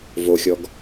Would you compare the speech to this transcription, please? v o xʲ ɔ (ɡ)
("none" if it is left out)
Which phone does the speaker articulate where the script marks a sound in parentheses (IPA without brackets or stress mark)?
ɡ